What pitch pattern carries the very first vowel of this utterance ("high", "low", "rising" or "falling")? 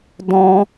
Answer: high